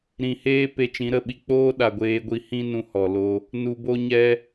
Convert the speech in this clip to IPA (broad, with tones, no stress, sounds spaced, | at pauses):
ɾ ĩ˨ h eː˦ p e˧ t͡ʃ ĩ˨˦ ɾ ə˦˨ ɓ i˧ k͡p oː˦ ɗ a˨ ɡʷ eː˧ ɡʷ i˧ h ĩ˦ n ũ˧ h ɔ˨ l o˧ | n u˧ b o˦ ɲ ɛ˦